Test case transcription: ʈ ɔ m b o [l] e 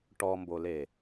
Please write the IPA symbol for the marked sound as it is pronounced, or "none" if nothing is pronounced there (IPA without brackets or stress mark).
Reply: l